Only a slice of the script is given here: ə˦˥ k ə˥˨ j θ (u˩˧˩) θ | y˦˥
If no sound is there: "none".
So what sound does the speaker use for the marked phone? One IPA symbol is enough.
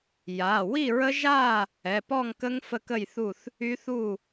u˥˨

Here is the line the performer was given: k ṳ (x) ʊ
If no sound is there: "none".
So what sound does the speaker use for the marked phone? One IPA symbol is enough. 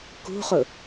χ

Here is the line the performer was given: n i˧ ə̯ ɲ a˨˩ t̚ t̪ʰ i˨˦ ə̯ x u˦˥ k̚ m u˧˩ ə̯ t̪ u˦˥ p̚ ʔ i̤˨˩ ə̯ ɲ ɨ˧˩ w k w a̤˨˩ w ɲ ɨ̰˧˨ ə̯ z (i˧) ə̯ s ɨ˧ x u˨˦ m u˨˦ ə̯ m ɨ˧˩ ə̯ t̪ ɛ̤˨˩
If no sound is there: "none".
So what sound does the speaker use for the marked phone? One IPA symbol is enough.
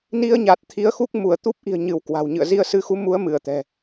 i˧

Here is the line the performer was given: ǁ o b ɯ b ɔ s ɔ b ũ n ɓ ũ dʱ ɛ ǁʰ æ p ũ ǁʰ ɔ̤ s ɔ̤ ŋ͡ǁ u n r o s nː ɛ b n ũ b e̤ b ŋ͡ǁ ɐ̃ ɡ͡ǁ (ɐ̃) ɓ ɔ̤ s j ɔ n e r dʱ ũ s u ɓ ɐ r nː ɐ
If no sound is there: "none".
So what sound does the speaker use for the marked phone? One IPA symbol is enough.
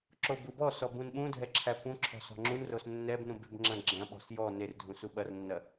ɐ̃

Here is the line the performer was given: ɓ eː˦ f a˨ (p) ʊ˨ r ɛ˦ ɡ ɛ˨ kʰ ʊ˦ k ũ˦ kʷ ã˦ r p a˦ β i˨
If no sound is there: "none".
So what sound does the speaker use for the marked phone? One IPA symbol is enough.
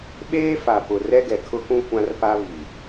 p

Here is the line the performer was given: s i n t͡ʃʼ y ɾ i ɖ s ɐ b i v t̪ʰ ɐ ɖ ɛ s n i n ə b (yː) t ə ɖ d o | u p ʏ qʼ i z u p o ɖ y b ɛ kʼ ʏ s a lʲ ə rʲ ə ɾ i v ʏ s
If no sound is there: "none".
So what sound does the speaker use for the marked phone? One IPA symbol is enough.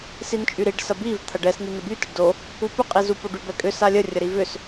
y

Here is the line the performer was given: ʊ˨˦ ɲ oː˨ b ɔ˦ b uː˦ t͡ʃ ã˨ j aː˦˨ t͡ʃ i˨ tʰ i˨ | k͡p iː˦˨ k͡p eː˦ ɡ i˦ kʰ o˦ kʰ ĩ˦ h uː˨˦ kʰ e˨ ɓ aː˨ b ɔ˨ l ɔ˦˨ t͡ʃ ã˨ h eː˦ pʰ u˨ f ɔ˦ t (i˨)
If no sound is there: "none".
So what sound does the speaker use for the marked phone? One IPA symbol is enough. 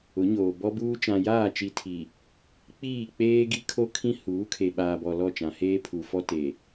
e˨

